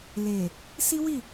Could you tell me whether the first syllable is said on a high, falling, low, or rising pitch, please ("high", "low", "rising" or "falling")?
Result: low